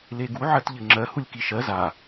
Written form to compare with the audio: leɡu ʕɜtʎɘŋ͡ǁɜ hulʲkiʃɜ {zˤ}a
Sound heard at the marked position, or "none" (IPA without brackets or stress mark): z